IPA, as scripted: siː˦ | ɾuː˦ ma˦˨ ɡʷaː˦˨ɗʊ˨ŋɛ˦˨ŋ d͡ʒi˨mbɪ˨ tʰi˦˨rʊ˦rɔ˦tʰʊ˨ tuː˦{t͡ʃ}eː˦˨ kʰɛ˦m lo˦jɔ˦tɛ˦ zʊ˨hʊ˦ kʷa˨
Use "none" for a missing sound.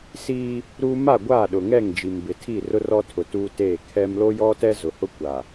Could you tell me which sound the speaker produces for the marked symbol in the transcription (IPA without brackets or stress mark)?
t